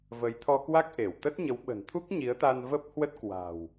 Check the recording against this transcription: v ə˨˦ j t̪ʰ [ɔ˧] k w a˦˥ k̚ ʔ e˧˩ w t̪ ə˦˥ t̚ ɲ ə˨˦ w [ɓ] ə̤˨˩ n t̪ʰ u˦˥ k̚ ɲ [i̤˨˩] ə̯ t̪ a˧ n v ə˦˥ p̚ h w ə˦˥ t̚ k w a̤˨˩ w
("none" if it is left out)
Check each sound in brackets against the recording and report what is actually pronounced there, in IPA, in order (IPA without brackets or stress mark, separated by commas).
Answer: ɔ˧, ɓ, i˨˦